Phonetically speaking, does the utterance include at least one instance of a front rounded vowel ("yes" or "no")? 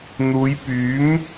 yes